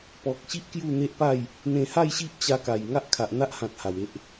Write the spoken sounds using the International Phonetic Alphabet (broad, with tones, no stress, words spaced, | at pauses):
pɔ˨k̚ɕi˦ʔ kju˥˧n̪e˦ʔpa˥˧j | n̪ẽ˧ha˥˧jɕi˦ʔ t͡ɕa˧ka˨˩j ŋa˦ʔkʰa˨ʔn̪a˦ʔhã˨t̚ ha˨˩we˦ʔ